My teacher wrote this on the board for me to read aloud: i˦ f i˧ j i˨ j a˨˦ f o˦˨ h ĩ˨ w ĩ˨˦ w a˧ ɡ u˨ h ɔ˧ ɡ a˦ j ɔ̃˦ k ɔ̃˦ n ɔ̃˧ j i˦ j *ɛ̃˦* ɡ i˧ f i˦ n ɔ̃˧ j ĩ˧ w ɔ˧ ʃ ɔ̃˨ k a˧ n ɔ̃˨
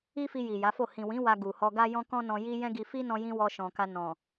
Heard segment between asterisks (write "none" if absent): ɛ̃˦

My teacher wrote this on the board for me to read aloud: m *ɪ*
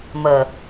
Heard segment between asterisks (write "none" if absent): ə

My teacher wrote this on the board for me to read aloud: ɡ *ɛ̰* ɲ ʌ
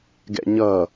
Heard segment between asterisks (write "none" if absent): ɛ̰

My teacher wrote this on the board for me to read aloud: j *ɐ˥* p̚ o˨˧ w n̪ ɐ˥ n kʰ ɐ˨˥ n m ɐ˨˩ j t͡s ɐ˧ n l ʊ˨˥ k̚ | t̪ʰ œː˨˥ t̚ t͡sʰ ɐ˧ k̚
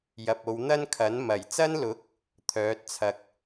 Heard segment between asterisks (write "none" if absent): ɐ˨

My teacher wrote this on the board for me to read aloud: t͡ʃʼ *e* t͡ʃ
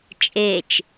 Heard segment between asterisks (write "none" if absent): e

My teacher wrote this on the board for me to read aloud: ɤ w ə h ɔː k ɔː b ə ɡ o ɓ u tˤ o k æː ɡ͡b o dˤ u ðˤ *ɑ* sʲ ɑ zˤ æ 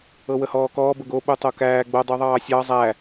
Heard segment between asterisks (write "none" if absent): ɑː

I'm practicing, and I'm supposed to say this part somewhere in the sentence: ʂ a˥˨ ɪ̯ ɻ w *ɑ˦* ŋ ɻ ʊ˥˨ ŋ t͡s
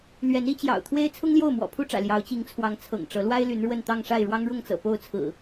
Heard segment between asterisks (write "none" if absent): ɑ˦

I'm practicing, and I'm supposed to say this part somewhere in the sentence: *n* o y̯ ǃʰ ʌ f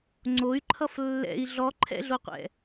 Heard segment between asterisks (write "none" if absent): ŋ͡ǀ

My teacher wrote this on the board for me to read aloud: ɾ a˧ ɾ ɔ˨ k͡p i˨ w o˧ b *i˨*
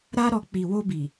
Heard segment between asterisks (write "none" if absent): i˨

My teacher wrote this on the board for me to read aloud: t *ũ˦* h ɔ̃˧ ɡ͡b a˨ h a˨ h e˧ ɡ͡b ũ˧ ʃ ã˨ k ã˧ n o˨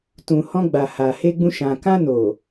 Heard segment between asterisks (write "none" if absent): ũ˨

